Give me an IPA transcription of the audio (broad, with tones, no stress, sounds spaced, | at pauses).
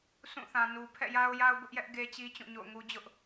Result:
s ũ˦˨ θ ã˨ n u˨ pʰ ɛ̰˦˨ j a˦ ʊ̯ j a˦ ʊ̯ b ʊ˦ ʔ j ɛ˦ ʔ ɡ e˦ t͡ɕ i˦ t͡ɕ ũ˦˨ ɲ o̰˦˨ ʊ̯ ŋ u˦ d͡ʑ ʊ˦ ʔ